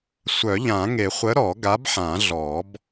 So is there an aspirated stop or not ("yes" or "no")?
no